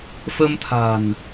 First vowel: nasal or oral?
oral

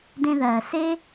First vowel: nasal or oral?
nasal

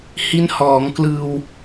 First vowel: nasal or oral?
oral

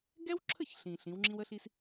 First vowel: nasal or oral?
oral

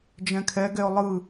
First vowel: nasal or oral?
nasal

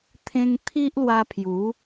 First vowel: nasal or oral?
nasal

